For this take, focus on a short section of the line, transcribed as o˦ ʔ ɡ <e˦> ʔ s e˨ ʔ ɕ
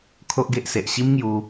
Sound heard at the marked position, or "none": e˦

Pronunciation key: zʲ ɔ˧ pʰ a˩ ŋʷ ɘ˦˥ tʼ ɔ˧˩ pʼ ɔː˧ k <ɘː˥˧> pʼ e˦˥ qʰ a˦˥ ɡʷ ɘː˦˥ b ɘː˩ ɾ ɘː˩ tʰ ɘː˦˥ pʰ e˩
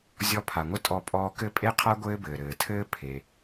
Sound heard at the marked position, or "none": ɘ˥˧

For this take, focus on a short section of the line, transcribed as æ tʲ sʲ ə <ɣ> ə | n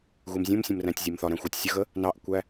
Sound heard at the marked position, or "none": ɣ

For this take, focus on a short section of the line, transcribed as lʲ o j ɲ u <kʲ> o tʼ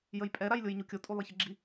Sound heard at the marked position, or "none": kʲ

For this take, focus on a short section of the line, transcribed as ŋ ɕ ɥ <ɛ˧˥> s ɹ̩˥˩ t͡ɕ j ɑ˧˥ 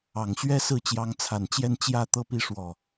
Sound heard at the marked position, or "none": ɛ˥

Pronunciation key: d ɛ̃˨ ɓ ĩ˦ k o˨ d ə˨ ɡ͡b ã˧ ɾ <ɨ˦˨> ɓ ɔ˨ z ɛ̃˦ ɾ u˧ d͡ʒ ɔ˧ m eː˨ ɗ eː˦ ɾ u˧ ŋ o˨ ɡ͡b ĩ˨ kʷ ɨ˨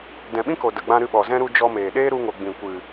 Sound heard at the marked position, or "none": ɨ˧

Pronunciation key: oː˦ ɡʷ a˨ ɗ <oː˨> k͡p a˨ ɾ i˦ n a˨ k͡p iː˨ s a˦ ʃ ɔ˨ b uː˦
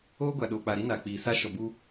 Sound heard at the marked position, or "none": oː˨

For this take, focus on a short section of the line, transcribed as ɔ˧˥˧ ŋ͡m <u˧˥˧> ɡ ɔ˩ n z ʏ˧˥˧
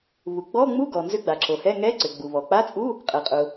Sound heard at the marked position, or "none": u˧˥˧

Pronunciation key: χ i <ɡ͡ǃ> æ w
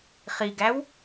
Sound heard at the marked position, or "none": ɡ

